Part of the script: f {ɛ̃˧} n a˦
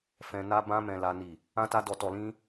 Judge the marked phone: correct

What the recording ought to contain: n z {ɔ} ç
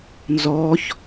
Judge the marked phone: correct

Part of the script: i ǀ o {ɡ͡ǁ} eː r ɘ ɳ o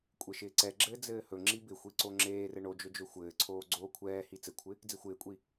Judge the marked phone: incorrect: ŋ͡ǁ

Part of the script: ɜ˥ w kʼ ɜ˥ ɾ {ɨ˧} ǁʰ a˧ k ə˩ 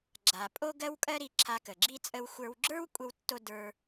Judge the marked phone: incorrect: i˧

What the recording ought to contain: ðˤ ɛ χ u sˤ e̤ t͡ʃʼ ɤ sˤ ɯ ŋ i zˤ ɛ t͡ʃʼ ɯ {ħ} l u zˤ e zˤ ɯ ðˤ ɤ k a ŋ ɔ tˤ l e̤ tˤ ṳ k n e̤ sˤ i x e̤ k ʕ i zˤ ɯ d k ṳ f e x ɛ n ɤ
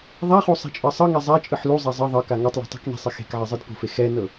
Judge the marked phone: correct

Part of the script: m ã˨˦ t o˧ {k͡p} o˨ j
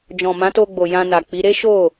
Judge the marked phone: incorrect: ɡ͡b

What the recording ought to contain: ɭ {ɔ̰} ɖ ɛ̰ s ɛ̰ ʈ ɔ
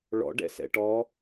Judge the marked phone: correct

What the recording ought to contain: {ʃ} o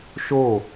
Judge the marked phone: correct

